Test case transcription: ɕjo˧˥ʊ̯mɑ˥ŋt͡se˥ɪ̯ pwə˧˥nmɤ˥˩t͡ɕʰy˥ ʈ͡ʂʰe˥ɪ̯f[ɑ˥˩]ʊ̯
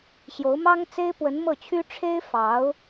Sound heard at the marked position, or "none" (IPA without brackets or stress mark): ɑ˧˥